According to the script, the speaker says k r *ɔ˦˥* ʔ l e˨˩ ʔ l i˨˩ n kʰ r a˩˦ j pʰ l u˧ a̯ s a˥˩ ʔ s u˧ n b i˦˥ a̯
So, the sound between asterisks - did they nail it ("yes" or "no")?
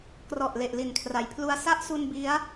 no